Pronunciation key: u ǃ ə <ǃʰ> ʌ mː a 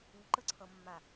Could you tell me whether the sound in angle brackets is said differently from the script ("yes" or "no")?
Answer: yes